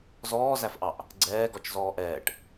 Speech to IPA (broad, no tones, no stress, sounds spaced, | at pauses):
z ɔː z æ f ʔ ɑ ʔ | ɡ͡ǀ ɛː ɡ ɔ t͡ʃ z ɔː ʔ ɛː ʈ